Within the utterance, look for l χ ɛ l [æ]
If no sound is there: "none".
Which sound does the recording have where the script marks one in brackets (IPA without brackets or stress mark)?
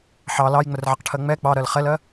ɜ